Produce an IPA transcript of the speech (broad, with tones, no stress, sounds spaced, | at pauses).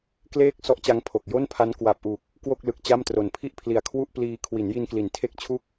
k l eː˥˩ k̚ s ɔ˦˥ ʔ t͡ɕ a˦˥ ŋ pʰ o˨˩ k̚ j o˥˩ n pʰ a˦˥ n k w a˨˩ p̚ ʔ u˨˩ k̚ | k w o˥˩ k̚ l ɯ˨˩ k̚ t͡ɕ a˥˩ m t r o˨˩ n pʰ i˥˩ ʔ pʰ l i˨˩ a̯ kʰ w u˥˩ ʔ p l iː˧ kʰ w i˩˦ n j i˧ n k l i˩˦ n tʰ e˥˩ k̚ t͡ɕʰ u˥˩ k̚